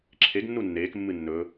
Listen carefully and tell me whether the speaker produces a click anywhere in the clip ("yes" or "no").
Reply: yes